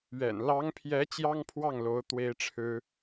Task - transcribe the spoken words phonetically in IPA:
ɥɛ̰˨˩n lɑ˧˥ŋpʰjɛ˧˥ t͡ɕjɑ˥ŋpʰwɑ˥˩ŋlo˧˥ʊ̯ t̪we˥ɪ̯ʈ͡ʂʰɻ̩˥

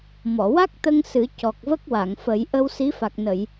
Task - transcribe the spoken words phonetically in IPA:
mɔ˨˩˨wa˦˥k̚t̪ə˧ŋ sɨ˨˩˦ cɔ˨˩k̚və˦˥k̚wa˨˩˨ŋfə˨˩˦j ʔə˧wsi˧˥ fa˨˩k̚nə˨˩˨j

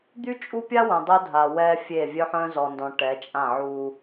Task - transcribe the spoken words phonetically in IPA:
d̪y˦t͡ʃʼu˦pʲa˦ wœ̃˨dˤo˦dʱa˨ wɛ˦fʲe˦˨ vʲœ˦ħœ̃˦zɔ˨ndɔ̃˨ ʈɛ˨˦t͡ʃʼã˦˨ʕu˦

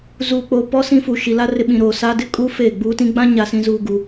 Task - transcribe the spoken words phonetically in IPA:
zuː˨k͡poː˨ pɔ˦ sĩ˦fu˨ ʃi˨la˦ rɪ˨ ɓĩ˨ɾoː˨saː˦ dɪ˦kʼuː˦ feː˦˨ɡ͡buː˦tĩ˦ ɡ͡bã˦ɲa˨sĩ˨zuː˨ ɡu˨

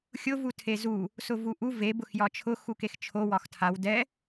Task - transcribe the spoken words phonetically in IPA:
xʲʊ vutʰezu | sʊvuʔu ve bʊxjɒt͡ʃʰʊ xukext͡ʃʰo wɒxtʰaw dɛ

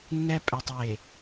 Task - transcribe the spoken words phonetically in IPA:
nːɛ˦ pʼɛ˨tˤje˨

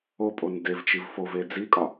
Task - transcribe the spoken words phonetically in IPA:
opʼon devt͡ʃiv fove d͡zikʼɒ

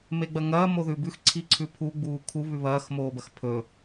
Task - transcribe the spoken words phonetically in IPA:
meɡ͡bɐŋɐː moðʉbʉx ǀʰiǀʰʉpʰu ɡ͡buːkʰu βʉβɐːx moːbɐxpʰɵ

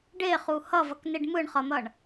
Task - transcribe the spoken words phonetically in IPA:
ɖeχu hʌvʌkneɖ mɯɳχʌn̪ʌɳ

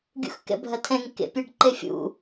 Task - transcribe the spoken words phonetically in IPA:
ɡʲṵxkɛ̰bʱɐtʰɛ̃ŋ kḛpʲɛɖǃefʲṵ

